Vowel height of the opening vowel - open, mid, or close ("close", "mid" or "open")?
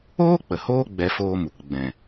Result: mid